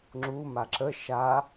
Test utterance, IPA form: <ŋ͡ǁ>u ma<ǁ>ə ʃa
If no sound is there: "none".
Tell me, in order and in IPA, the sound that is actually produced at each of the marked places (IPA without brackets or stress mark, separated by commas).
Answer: ŋ͡ǁ, ǁ